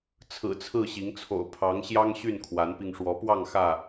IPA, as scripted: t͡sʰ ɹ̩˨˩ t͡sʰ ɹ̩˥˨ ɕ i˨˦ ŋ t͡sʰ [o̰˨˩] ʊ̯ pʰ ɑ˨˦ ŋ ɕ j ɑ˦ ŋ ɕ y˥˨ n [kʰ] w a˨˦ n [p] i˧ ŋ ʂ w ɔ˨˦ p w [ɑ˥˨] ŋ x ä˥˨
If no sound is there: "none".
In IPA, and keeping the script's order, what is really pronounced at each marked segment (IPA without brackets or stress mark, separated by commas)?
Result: o̰˨˩, kʰ, p, ɑ˥˨